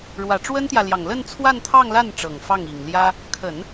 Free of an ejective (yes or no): yes